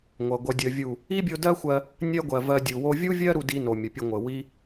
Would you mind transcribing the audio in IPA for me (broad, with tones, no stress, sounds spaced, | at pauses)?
ŋʷ ʌ˨ ɡʷ ʌ˧ dʲ ə˧ vʲ u˦˨ | i˦ bʲ o˧ d ɜ˦ xʷ ɜ˧ | nʲ ɜ˦ ɡʷ ɜ˨ v ɜ˧ dʲ u˨ w o˦ vʲ u˦ vʲ ɜ˦ ɾ u˧ d i˧ n o˨ mʲ ə˨ pʲ ə˧ ŋʷ ə˨ w i˦